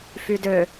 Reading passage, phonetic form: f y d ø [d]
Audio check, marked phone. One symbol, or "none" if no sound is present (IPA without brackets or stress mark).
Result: none